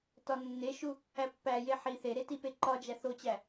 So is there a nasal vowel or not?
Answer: no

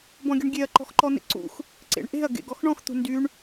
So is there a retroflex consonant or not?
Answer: yes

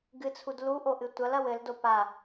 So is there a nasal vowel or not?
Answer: no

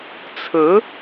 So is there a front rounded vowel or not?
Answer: no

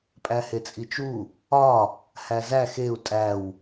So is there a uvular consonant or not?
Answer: no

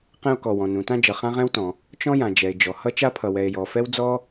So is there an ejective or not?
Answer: no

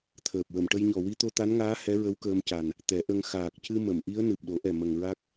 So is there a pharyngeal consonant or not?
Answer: no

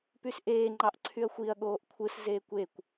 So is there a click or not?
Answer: yes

